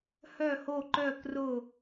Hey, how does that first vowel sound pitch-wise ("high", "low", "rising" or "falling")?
falling